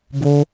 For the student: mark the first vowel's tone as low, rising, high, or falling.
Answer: high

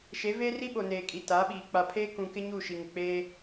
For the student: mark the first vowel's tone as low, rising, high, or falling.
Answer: rising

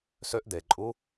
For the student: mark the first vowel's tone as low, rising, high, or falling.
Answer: rising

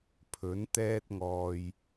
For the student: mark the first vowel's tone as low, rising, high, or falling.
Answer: rising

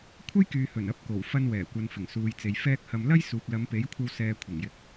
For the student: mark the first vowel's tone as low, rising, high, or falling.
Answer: high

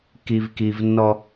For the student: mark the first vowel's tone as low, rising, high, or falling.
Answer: low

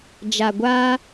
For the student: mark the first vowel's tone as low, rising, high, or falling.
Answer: low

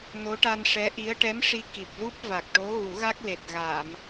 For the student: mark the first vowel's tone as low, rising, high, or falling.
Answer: rising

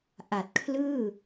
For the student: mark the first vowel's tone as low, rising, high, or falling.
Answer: low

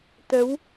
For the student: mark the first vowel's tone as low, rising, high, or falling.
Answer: rising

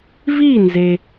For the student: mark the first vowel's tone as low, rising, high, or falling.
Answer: falling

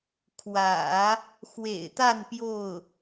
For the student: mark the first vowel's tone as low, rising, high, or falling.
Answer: low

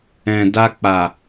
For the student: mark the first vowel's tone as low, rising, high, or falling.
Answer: low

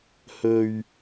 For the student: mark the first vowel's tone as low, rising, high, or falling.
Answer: low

